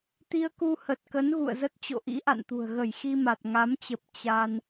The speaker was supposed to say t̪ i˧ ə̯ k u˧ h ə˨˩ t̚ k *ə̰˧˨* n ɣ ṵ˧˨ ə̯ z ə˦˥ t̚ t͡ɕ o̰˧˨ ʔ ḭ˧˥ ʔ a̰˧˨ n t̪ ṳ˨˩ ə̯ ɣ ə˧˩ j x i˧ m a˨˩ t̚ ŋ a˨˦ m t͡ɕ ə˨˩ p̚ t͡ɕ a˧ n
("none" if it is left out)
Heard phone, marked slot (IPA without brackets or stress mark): ə˨˦